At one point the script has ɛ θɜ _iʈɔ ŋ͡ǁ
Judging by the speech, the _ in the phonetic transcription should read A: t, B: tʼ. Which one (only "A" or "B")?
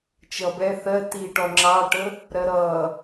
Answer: A